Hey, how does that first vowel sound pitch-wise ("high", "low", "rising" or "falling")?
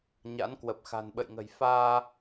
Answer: rising